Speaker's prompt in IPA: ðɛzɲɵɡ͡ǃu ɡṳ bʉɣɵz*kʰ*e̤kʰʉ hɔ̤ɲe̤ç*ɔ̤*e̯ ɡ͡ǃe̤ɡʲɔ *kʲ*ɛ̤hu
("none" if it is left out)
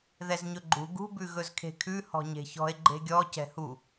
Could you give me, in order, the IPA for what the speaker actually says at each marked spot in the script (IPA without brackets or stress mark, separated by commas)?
kʰ, ɔ̤, c